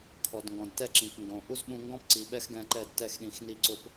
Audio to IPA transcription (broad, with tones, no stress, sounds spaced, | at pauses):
kʰ ɔ˨ d ŋ ɡ ɔ̃˨ d t ɛ˦ ǁ ĩ˨ k ŋ ɡ õ˨ ʔ u˦ z ɓ ũ˧ ŋ ɡ ɔ̃˦ p ǀ i˨ ɓ ɛ˦ x ɡ ɛ̃˧ ǃ ɛ˦˨ d t ɛ˦˨ x ɗ ĩ˨ x n i˧ ǀ ʊ˧ p